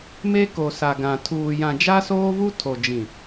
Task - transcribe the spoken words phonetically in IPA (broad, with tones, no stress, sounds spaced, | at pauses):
m e˦ k o˨ s a˨ ɡ ã˨ tʰ uː˨ j ã˨ d͡ʒ a˦ s oː˦ v u˦ tʰ o˨ d͡ʒ ĩ˨